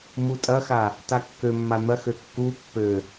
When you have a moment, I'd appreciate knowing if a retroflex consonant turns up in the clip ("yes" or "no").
no